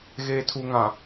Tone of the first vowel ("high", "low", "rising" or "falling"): low